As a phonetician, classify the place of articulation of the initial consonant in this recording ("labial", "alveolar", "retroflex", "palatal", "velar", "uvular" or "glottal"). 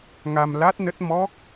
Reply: velar